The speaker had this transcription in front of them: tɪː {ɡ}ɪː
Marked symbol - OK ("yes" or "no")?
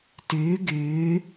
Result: yes